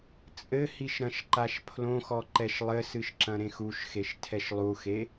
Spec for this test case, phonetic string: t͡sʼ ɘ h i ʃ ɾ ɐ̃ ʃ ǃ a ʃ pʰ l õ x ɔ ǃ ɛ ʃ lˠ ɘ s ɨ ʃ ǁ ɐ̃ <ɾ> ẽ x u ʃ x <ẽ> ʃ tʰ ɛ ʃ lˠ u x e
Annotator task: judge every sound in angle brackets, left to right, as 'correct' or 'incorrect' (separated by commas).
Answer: correct, incorrect